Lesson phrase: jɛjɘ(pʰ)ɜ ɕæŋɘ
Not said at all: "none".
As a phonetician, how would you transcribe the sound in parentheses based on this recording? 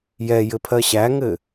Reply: pʰ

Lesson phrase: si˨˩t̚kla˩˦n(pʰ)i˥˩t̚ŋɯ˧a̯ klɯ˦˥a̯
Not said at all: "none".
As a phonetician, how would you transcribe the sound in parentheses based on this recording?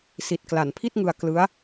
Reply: pʰ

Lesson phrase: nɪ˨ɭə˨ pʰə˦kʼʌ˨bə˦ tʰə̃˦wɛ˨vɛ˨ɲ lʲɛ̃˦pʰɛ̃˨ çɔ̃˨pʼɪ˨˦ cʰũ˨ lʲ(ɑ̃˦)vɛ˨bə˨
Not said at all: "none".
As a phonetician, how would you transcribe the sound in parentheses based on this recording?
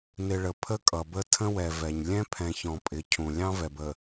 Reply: ɑ̃˦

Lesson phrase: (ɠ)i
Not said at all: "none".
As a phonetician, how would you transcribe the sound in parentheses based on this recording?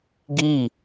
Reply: ɡ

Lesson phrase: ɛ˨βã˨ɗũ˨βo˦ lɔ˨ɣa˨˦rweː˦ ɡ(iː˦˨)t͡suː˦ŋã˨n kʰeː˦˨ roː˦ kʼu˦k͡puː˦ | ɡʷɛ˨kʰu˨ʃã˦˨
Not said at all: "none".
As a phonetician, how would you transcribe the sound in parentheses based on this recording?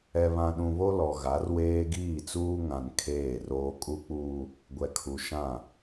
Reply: iː˦˨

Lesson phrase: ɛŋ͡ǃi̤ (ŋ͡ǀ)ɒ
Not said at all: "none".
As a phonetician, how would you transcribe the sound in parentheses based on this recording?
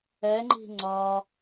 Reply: ŋ͡ǀ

